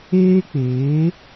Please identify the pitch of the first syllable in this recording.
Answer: high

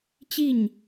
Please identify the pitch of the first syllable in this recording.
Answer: falling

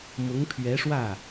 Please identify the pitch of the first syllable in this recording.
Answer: rising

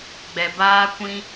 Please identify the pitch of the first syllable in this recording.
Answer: low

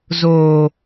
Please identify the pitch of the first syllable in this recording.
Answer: low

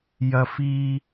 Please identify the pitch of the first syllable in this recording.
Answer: high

